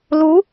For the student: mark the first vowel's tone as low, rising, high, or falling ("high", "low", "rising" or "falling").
rising